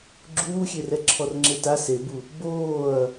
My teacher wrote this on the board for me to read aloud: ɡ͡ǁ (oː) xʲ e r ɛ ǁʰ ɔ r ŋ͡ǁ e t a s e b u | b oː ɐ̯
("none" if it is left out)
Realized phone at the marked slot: uː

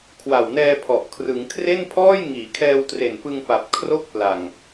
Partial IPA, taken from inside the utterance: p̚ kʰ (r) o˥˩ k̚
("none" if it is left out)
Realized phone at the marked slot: r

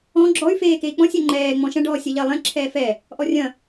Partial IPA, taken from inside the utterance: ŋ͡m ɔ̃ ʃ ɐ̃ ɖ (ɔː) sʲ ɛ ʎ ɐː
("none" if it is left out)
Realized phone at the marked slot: ɔː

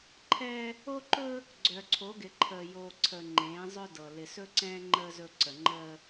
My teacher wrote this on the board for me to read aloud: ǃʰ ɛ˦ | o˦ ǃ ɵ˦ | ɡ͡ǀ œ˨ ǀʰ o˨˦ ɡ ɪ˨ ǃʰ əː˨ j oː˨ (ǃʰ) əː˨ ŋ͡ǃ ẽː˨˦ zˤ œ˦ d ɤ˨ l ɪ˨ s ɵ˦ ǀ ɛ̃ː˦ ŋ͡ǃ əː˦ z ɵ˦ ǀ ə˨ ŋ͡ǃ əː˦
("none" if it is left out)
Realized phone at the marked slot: ǀʰ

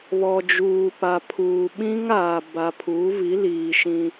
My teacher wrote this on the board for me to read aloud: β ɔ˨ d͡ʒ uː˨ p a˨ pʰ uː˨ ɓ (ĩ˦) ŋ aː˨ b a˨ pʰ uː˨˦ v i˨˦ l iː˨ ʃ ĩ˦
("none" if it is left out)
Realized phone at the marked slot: ĩ˦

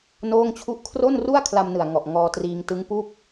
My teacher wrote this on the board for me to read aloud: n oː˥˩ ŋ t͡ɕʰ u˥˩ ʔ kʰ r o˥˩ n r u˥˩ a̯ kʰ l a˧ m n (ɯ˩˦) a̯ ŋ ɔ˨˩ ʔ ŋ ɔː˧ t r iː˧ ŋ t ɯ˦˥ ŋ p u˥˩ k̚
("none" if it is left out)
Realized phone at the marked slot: ɯ˨˩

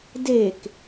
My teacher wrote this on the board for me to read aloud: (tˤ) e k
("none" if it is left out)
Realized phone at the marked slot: d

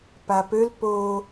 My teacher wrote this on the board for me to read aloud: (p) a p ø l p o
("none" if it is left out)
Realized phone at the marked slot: p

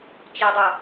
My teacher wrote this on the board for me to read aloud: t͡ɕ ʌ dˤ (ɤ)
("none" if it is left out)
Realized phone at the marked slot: o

